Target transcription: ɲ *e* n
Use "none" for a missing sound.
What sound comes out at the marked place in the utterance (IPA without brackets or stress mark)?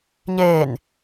eː